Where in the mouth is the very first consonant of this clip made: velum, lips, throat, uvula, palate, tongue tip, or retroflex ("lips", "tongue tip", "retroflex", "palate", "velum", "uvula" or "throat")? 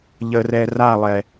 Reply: palate